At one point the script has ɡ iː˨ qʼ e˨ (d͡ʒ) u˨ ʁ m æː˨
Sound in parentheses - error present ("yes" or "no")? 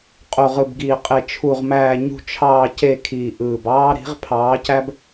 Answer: yes